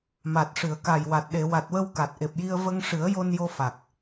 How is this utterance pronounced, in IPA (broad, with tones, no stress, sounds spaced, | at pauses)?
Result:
m a˨˩ t̚ ʂ ɨ˨˩˨ ə̯ k a˨˩ j w a˨˩ t̚ ɗ e˨˩˨ w a˨˩ t̚ w ə˧ w k a˨˩ t̚ ʔ e˨˩ p̚ j i˧ ə̯ v ə˧ ŋ ʂ ɨ˨˩˦ ə̯ j o˧ n j o˧ f a˨˩ k̚